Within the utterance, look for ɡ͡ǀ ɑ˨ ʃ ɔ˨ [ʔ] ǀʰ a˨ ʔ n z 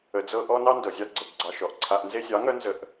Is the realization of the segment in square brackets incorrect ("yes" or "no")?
no